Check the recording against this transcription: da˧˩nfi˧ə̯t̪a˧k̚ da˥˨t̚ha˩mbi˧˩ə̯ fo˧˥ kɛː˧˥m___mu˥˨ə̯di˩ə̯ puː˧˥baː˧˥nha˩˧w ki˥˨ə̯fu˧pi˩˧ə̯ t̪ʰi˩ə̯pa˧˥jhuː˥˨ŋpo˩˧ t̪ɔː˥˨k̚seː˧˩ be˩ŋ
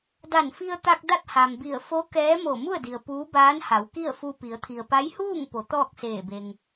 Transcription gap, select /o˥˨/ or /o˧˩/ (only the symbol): o˧˩